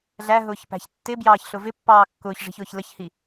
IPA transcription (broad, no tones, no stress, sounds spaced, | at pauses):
ɮ æ ɦ ʊː ç p æ̤ ç tː ɪ b j ɑː ç ɬ ʊ v ɪ pː ɑː kː ʊː ç ʐ i̤ ç ʊː ç l ə ç h i